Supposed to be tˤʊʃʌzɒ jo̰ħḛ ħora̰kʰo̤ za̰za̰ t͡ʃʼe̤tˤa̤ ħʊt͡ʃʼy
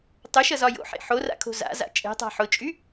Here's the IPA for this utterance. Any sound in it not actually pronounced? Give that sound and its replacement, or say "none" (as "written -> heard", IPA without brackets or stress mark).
none